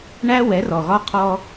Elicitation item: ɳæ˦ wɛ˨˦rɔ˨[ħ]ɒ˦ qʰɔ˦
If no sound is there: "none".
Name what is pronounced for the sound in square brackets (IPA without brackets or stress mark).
ɣ